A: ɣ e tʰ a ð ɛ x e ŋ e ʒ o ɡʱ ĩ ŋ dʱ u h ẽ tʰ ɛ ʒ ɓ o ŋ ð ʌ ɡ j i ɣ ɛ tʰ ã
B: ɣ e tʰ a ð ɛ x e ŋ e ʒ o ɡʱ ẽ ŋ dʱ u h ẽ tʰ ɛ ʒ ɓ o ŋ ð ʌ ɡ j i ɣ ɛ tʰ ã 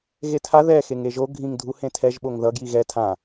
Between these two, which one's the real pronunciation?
A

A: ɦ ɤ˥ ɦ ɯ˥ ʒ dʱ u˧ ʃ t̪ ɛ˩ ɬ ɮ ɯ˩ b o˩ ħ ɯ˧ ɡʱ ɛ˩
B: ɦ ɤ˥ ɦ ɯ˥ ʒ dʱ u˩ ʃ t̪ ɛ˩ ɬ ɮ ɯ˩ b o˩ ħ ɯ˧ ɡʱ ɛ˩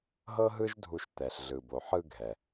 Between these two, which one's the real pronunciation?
A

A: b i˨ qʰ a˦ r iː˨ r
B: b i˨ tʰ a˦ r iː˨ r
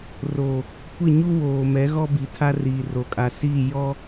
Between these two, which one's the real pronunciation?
B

